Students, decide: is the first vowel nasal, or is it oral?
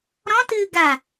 nasal